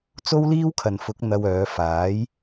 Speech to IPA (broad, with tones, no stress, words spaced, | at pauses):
t͡so˥wliː˥wkʰɐ˨nfʊ˨˥k̚ n̪ɐ˧w œː˨˧faː˨˥j